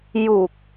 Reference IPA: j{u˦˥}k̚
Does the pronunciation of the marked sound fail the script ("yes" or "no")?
yes